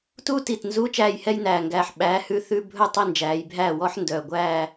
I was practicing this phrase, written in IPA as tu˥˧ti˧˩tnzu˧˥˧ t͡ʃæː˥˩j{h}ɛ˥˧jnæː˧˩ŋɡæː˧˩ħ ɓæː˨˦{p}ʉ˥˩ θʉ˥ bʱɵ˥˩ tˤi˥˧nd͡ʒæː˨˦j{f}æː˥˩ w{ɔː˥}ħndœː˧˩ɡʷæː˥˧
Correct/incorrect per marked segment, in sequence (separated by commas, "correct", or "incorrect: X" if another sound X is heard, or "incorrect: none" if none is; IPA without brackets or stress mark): correct, incorrect: h, incorrect: bʱ, incorrect: ɔ˥